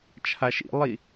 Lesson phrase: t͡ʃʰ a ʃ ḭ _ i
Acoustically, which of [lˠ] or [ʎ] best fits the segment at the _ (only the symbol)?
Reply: lˠ